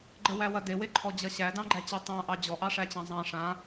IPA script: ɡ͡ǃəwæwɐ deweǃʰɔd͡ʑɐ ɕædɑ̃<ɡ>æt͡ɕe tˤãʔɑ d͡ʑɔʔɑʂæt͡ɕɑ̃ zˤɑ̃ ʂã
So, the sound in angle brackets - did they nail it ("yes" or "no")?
no